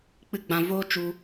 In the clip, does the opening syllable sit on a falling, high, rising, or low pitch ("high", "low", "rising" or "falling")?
falling